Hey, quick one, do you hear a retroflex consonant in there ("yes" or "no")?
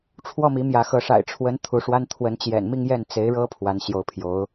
yes